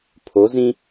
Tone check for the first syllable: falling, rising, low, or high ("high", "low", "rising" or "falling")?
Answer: rising